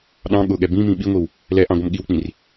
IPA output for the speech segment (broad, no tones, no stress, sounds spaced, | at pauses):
ɗ ɑ̃ ɠ ʊ ɠ ɛ b ĩ m ĩ ɓ i ŋʷ i w | l ɛ ʔ ɑ̃ ɡʷ ə m ɠ i w k͡p ĩ r